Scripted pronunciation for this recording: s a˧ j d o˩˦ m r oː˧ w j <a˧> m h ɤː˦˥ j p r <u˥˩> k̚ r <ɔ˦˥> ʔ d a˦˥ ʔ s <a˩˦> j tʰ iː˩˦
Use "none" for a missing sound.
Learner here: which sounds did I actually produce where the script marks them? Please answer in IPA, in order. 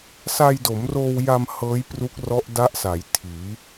a˧, u˦˥, ɔ˦˥, a˩˦

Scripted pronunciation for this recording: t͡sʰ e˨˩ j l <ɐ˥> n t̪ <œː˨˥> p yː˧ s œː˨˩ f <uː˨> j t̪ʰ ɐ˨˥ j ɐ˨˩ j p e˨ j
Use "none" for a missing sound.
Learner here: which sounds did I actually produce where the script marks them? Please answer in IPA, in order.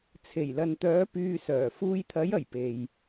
ɐ˨, œː˨˥, uː˧

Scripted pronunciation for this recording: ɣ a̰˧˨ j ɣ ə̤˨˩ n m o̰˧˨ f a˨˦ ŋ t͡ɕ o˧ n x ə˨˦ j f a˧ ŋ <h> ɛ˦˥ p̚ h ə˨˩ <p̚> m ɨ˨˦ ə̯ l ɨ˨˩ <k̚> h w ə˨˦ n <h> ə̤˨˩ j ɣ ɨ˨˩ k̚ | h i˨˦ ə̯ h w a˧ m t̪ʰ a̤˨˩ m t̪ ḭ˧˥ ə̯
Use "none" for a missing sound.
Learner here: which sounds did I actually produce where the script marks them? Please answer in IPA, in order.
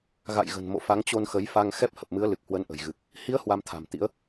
x, p̚, k̚, ʔ

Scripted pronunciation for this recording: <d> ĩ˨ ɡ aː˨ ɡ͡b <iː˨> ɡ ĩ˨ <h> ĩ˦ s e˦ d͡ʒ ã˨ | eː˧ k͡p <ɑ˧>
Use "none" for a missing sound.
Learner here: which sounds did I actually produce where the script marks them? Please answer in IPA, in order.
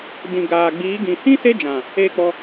d, iː˨˦, h, ɔ˧

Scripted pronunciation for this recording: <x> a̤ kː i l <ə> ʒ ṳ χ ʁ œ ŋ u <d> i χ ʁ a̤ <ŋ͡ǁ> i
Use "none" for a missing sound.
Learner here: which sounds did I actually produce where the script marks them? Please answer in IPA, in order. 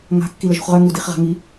ŋ, ə, d, ŋ

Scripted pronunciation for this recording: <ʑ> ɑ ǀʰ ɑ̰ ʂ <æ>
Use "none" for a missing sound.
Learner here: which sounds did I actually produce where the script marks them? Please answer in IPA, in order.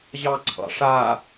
ʑ, a

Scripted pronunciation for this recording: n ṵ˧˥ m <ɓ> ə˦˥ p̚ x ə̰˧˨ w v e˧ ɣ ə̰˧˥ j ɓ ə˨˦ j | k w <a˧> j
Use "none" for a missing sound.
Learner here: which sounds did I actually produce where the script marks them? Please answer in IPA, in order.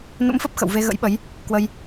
f, ə˧

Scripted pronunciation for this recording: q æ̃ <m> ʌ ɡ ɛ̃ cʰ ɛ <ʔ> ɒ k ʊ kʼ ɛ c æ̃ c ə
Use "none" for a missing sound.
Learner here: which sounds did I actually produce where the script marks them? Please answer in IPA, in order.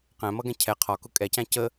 m, qʰ

